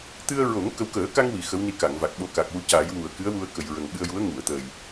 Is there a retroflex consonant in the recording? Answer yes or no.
no